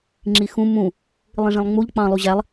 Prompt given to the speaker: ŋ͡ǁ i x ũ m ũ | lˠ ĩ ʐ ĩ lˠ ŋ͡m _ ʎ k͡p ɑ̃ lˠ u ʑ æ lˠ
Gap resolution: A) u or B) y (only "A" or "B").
A